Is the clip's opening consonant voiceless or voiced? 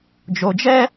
voiced